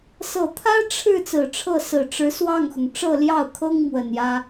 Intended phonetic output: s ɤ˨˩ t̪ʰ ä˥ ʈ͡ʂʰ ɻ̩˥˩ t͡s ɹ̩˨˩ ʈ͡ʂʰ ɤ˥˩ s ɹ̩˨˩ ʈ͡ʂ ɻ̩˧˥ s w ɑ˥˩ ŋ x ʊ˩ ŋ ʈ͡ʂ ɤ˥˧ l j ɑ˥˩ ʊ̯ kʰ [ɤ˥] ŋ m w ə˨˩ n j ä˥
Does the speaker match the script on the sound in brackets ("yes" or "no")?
yes